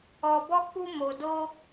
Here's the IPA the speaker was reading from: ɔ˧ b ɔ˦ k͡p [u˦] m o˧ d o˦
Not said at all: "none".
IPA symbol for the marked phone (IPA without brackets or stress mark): u˦